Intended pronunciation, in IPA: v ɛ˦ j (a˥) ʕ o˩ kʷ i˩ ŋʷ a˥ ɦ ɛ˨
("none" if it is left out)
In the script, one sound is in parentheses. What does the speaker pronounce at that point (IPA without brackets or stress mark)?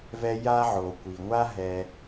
a˥